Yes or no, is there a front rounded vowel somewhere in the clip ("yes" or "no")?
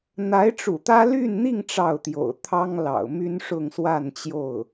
yes